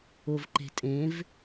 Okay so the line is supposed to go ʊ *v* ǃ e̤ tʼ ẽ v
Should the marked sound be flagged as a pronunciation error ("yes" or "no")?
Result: no